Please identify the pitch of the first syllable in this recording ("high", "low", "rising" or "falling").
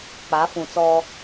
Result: rising